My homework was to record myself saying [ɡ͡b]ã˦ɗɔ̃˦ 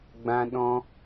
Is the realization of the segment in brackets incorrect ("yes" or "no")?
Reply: no